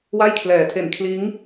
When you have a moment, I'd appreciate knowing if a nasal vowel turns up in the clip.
no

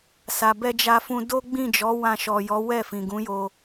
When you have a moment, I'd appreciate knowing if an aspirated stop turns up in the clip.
no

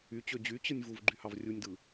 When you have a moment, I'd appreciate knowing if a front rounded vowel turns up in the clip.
yes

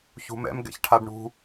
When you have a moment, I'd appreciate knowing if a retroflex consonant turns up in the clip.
yes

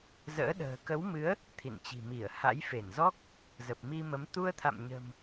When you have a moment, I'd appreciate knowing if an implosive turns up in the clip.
yes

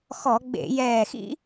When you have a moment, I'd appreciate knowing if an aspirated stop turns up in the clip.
no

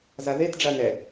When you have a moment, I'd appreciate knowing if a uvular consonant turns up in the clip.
no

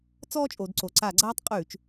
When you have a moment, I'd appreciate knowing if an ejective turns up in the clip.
yes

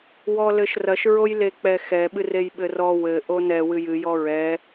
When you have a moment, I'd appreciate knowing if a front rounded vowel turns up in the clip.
no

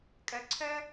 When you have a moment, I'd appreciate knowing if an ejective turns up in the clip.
yes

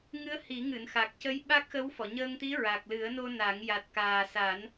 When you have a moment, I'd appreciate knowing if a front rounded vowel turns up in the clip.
no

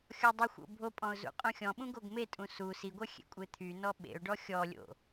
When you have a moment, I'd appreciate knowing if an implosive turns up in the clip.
yes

